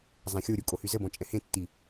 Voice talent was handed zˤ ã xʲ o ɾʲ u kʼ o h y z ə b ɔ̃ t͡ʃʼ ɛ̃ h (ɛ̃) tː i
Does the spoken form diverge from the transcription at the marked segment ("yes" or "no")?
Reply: yes